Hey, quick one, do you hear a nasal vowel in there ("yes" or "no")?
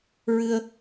no